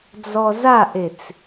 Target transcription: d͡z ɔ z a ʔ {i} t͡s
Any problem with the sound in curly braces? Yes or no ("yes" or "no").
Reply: yes